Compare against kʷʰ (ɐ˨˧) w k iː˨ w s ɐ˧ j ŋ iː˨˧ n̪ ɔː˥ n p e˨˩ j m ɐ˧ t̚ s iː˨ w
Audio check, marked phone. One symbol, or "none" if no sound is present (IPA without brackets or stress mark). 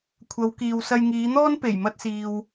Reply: ɐ˨˧